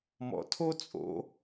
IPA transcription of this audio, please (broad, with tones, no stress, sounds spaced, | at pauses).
m ɔ̰˩ tʰ o˥ t͡sʼ o̰˩˧